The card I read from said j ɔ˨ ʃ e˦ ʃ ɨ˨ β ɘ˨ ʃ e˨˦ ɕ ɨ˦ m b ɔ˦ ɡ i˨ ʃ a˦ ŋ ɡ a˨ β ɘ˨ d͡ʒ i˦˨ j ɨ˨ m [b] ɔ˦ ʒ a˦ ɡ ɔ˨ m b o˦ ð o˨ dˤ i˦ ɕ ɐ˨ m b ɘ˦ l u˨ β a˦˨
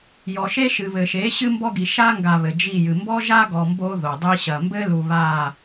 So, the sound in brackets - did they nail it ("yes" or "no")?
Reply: yes